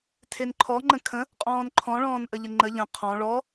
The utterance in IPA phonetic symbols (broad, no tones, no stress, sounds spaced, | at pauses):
tʰ e n ǃʰ ɔ ŋ͡ǃ ə̃ kʰ ə̃ | qʼ ɔ̃ː n ǃʰ ɔ̃ ɭ ɔ̃ː n ʔ ə ʎ ə ŋ͡ǃ ə ʎ ə̃ qʰ ɔ̃ ɭ ɔ